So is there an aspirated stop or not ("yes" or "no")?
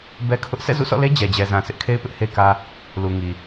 yes